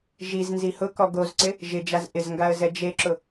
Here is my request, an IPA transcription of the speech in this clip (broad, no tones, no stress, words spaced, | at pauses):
ʒiz nzihʊkɔ ɡozǀɪ | ʒɪd͡ʒaz ʔɪzŋɡaə̯ zɛd͡ʒeǁʊ